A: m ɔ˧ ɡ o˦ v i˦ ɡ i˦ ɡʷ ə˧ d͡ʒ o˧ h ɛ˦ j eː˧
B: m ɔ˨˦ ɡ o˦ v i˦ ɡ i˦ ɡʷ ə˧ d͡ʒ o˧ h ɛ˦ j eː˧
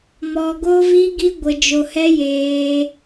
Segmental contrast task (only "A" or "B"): A